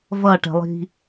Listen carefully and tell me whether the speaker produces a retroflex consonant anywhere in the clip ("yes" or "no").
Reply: yes